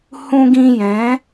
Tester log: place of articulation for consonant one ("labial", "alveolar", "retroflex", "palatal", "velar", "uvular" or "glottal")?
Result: glottal